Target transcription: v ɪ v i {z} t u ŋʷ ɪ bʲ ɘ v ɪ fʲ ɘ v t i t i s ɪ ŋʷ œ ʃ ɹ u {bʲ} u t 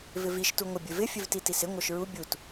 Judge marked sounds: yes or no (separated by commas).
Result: no, yes